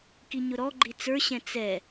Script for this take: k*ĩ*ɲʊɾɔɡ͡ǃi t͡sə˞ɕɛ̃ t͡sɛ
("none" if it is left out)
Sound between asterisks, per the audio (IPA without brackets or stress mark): i